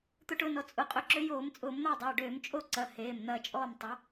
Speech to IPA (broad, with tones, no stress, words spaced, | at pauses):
t̪ʊ˧ʈʊː˧nɔ˩˧˩ t͡sʼʊ˩˧˩qʼʊ˨˥ǁø˨˥ joː˧˩˧mt͡sʼʊː˧˩˧mn̪ɐː˥˨dˤɐː˩˧˩ ɖøː˧˩˧mt͡ʃʼo˥˨ǀɐ˩˧˩ heː˩˧˩mn̪ɐː˧t͡ʃʼɔː˥˨m tˤɐ˨˥